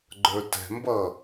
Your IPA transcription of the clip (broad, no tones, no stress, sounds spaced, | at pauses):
ɡ͡ǃ ə˞ t ɛ̤ m b ʌ